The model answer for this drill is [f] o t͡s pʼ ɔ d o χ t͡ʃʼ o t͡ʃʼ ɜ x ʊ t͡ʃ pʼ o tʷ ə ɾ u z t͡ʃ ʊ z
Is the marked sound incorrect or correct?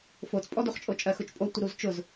correct